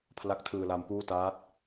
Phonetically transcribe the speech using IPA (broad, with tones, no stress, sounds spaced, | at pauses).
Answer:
pʰ l a˦˥ k̚ tʰ ɯː˧ l a˦˥ m p uː˥˩ t aː˦˥ t̚